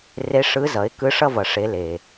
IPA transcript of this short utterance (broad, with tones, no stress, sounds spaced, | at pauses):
r e˧˥ ʂ ɯ˧˥ z ʌ˩˥ ɪ̯ k ɯ˧˥ ʂ ʌ˥˧ v ʌ˨˩ ʂ e˧˥ l e˨˩